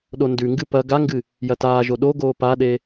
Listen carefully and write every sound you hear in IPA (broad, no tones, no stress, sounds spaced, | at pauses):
ɗ o n d ʉ ŋ ɡ ɨ p ɐ ɡ a ŋ ɡ ɨ | j ɐ t aː ʒ o ɗ o ɡ oː p a ɗ e